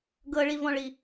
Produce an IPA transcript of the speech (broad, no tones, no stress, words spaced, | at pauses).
ɡɤɭivɔ̃ɭi